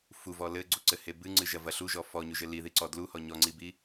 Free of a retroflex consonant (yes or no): yes